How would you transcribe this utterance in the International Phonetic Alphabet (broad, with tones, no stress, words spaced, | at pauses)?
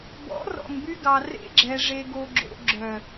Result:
bɔ̰˨˦rɔ̰˨ŋby˧ɡɑ˨ rḛ˧ɡ͡ǁɛ˨ ʐe˨ɡo˨ɡ͡ǁo̰˨ ɡ͡ǁœ˨